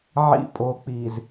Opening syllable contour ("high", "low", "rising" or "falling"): low